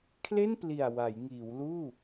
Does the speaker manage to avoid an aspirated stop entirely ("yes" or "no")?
no